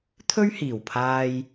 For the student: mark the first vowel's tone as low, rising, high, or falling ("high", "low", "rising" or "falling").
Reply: high